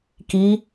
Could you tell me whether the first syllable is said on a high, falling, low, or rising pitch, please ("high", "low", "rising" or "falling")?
rising